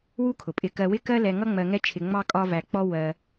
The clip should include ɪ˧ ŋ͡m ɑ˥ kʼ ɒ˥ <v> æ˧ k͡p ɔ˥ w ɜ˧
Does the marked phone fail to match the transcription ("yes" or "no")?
no